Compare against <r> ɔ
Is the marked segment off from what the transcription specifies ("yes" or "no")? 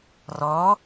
no